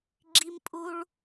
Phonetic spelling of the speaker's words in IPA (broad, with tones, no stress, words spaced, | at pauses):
ɡ͡ǁi˧mpʼu˧ɭ